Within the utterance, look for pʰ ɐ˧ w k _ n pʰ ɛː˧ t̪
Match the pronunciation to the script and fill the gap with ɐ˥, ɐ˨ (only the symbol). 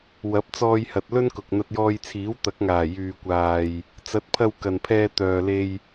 ɐ˨